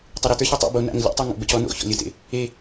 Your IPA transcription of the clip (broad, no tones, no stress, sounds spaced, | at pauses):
tˤ e ɾ ə t ə˞ ç ɔ tˤ ḛ b o n a̰ ŋ ə lʲ ḛ tˤ ə˞ ŋ o̰ b ə cʰ ɔ n o̰ ç ɔ̰ lʲ ə t ḛ | e